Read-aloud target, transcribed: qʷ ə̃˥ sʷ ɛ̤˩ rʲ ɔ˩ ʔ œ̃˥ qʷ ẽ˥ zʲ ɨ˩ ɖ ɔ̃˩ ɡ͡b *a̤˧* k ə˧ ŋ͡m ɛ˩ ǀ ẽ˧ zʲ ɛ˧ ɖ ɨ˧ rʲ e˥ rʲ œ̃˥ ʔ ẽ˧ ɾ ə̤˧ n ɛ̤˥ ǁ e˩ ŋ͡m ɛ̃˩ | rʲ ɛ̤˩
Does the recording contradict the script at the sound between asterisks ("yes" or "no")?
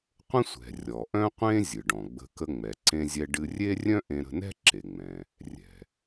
yes